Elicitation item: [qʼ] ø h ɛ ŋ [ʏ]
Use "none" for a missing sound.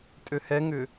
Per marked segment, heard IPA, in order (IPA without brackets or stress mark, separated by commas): tʼ, ʏ